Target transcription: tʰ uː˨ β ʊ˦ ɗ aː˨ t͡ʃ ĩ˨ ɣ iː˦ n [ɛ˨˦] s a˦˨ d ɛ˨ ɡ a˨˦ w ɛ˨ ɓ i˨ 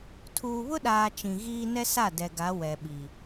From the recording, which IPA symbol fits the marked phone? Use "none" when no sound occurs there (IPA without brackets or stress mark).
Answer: ɛ˦